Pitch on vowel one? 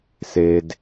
high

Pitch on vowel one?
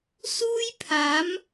high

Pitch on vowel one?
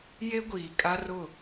high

